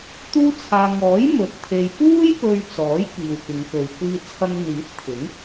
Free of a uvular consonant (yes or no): yes